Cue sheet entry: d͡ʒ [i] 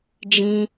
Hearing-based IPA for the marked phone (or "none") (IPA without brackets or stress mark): ĩ